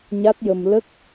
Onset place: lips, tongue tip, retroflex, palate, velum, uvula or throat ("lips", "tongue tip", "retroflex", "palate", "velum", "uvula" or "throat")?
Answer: palate